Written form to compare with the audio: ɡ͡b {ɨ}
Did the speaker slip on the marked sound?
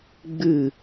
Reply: no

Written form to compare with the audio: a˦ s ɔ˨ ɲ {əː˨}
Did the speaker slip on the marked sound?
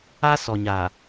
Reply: yes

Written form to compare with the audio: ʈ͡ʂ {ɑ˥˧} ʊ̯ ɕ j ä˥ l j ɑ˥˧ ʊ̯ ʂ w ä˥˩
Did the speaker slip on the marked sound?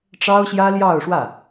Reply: yes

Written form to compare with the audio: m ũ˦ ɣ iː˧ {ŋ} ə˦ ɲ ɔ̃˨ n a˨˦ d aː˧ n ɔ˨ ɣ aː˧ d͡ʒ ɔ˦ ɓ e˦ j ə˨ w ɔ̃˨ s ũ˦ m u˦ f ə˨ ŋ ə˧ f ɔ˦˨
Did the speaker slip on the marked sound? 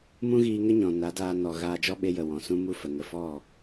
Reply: no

